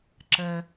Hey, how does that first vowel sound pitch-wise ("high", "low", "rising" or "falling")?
low